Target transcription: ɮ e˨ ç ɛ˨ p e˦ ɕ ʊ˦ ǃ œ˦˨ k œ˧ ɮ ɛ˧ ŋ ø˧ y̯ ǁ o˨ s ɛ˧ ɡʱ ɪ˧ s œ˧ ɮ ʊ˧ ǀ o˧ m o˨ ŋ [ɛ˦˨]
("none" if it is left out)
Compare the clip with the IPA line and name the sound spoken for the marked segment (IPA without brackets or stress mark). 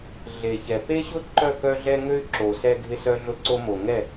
ɛ˦˨